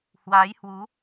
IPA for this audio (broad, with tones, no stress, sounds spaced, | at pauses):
h w aː˨˦ j h w u˨˦